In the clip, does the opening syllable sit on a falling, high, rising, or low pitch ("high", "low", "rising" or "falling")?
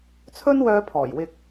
high